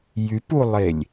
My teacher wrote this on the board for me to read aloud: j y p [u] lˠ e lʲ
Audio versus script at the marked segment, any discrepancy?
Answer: no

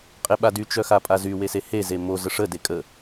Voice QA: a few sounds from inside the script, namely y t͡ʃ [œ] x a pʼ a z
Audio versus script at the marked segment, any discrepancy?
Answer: no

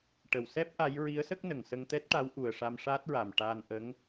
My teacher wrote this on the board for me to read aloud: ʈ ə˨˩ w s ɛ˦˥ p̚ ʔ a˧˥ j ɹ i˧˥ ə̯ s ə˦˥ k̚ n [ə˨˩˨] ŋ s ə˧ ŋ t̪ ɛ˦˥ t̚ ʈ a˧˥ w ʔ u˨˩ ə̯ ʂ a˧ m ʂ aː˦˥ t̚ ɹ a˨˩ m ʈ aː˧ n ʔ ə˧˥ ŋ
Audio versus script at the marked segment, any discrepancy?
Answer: yes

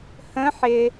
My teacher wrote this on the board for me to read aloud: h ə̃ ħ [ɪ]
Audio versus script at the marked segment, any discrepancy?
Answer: no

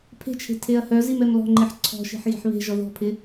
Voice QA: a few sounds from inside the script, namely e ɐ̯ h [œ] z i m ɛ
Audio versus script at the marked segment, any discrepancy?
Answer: no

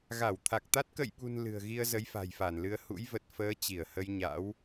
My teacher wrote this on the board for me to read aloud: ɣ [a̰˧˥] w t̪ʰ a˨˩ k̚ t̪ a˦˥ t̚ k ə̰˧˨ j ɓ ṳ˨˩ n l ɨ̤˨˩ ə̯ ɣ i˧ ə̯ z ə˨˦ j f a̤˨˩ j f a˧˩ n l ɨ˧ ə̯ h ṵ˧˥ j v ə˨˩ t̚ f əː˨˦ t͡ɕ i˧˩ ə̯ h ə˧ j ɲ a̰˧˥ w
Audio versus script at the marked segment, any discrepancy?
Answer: yes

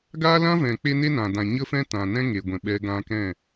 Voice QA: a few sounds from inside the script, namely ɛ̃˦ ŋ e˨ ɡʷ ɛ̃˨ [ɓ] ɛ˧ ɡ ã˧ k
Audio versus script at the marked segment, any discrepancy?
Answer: no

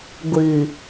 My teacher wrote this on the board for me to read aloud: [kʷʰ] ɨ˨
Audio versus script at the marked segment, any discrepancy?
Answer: yes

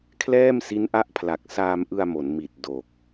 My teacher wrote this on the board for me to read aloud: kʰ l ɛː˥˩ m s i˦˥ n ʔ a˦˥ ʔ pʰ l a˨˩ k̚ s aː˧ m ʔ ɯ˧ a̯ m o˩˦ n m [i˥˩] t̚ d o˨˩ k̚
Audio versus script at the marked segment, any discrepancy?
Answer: yes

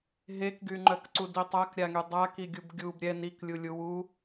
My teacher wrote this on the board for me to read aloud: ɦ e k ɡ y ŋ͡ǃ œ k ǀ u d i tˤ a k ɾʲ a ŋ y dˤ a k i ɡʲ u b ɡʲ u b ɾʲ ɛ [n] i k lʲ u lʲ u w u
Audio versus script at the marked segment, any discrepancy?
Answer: no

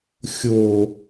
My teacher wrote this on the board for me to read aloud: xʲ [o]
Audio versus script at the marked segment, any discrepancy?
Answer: no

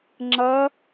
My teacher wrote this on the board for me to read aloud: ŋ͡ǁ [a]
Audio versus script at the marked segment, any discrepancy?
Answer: yes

